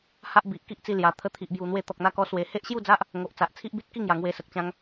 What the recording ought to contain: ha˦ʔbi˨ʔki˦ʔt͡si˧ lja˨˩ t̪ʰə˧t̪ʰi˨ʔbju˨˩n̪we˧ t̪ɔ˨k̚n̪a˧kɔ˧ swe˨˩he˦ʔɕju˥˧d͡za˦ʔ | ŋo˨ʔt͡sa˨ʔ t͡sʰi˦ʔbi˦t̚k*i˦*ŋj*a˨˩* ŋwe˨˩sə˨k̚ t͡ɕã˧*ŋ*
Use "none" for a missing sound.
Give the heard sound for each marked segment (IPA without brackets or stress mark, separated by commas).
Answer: i˥˧, a˨˩, ŋ